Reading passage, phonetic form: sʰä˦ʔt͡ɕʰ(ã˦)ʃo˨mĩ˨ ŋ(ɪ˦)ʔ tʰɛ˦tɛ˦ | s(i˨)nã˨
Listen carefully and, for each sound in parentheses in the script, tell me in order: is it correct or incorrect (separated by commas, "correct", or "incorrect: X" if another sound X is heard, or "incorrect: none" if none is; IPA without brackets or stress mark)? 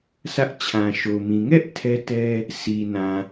incorrect: ã˨, incorrect: ɛ˦, correct